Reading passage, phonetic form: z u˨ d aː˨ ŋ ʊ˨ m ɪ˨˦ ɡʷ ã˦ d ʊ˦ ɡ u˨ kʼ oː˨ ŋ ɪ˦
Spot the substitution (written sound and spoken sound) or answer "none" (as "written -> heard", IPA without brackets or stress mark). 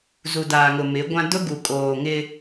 none